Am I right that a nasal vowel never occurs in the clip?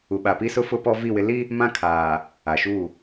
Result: no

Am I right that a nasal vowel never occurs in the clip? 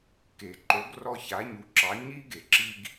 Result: yes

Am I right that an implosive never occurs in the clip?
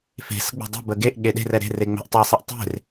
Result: no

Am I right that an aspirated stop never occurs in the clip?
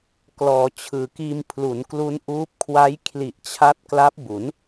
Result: no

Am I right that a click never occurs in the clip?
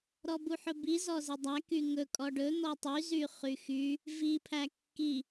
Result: yes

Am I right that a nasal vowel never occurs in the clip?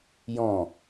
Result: no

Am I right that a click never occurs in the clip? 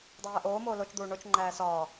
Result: no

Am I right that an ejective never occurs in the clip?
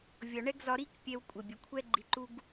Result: no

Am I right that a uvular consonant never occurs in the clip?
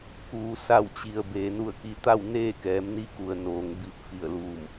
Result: yes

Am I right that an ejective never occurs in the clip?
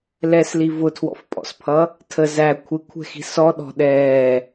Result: no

